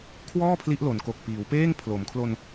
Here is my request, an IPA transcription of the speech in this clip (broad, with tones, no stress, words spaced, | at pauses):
kʰwɔː˥˩ pʰli˦˥ʔlo˩˦nko˨˩k̚ piː˩˦wpeː˥˩ŋ pʰlo˩˦mkʰlo˧n